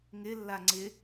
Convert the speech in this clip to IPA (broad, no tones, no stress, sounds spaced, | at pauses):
ŋ ɪ lː a ŋ͡ǀ ɪ